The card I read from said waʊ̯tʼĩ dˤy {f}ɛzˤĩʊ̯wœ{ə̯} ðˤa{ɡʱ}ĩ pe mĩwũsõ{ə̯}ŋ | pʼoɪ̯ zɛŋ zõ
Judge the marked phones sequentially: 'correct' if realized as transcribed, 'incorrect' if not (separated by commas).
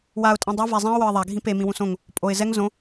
incorrect, correct, correct, incorrect